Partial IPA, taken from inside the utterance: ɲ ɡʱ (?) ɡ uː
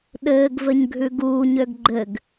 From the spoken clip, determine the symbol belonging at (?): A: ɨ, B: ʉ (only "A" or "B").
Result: B